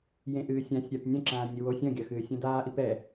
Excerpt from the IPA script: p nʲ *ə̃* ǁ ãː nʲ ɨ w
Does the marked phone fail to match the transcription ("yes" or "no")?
yes